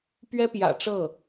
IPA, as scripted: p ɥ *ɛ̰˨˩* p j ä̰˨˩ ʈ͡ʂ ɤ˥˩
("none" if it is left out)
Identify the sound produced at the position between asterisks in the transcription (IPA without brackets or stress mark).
ɛ˥